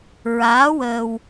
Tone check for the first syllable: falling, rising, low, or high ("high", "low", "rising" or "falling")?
rising